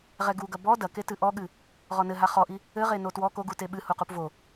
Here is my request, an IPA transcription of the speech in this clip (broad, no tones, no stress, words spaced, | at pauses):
ʁɛɡuɡɐ bɔ dɐketɨ ʔɔɠɨ | ʁɔnɘɦa χɔʔi | ɘʁeno twɔ koɡu teɓɨ huqupvo